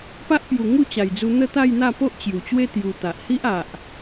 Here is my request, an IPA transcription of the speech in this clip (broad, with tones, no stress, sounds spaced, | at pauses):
p a˦ ʔ p j u˨˩ ŋ u˥˧ t͡ɕ a˨˩ j d͡z u˧ n̪ ə˥˧ t̪ a˥˧ j n̪ a˥˧ p o˦ ʔ t͡ɕ j u˨˩ t͡ɕ w e˦ t̪ j u˧ t̪ a˨ ʔ h i˦ ʔ a˨ ʔ